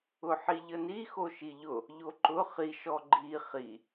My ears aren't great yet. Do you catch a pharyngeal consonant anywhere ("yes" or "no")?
yes